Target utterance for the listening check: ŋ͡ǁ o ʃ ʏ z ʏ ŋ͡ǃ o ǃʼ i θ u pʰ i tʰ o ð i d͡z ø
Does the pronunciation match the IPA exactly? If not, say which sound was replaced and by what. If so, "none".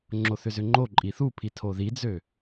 ʃ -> θ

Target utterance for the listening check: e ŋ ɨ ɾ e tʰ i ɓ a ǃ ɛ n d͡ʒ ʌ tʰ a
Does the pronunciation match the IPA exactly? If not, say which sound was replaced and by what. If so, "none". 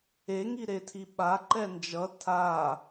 ɨ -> i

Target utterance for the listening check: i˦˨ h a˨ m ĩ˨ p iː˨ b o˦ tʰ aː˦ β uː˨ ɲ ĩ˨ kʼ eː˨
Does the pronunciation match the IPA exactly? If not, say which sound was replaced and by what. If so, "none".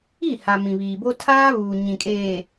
p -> β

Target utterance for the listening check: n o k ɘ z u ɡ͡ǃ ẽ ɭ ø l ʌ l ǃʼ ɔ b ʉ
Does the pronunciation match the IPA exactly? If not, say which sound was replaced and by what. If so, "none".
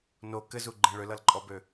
ʉ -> ø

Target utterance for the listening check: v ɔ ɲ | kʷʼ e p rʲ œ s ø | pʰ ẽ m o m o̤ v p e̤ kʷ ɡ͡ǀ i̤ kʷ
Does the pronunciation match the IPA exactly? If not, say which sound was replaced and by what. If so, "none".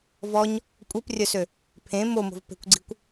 none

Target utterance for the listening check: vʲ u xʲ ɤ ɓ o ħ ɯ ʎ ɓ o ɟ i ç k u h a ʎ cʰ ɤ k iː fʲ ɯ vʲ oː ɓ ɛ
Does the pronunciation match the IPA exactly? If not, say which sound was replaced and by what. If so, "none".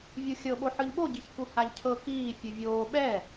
none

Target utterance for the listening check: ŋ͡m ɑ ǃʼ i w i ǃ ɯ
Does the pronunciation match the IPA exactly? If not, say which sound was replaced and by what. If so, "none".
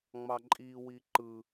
none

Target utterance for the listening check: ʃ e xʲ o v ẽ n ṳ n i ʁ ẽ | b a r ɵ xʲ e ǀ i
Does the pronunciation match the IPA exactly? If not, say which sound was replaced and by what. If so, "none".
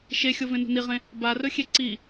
none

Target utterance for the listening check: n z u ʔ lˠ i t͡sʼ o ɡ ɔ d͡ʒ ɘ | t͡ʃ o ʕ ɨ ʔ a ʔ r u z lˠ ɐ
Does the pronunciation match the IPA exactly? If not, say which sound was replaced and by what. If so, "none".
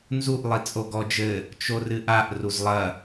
ʕ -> r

